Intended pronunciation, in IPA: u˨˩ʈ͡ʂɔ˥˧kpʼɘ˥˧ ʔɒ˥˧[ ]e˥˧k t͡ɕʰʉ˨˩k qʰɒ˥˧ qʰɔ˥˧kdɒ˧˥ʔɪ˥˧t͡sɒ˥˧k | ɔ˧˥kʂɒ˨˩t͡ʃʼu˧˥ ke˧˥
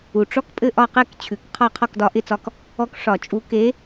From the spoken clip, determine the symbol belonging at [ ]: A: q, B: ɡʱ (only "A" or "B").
A